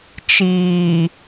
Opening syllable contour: low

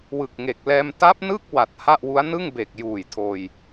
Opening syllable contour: low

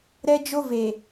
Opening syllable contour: high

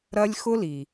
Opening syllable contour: high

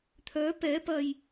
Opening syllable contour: rising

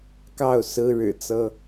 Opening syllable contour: falling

